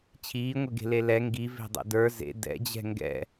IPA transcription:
t͡ɕʰ iː ŋʷ e ɡ e̤ l e l ɛ ŋ ɡ i v e̤ dˤ ḛ d ə˞ z ḛ d ɛ̰ d͡ʑ ɛ̤ ŋ ɡ ɛ̰

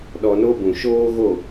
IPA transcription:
ɗ ɔ˧ n o˦ b ũ˨ ʃ oː˦ ɣ o˦˨

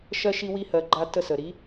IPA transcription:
ʃ ɜ˧ ʃ i˧ w i˧ h ɜ˨ ɡ͡ǃ a˧ t ə˧ s ə˨ ɾ i˨˦

